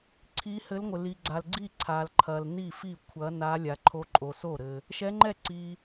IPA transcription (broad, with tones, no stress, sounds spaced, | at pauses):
ǀʰ i˧˥ h ɘ˧˥ l ŋʷ ɘ˨ l i˨ ɡ͡ǀ a˨ l ɡ͡ǀ i˥˩ ǀʰ a˨ l ǃʰ ɐ˨ l n i˥˩ f i˥˩ kʷʰ ɐ˧˥ n a˧˥ lʲ a˨ ǃʰ o˧˥ ǃʼ o˨ s o˥˩ ɾ ɘ˨ | ʃ ɛ˧˥ ŋ͡ǃ ɛ˥˩ ǀ i˨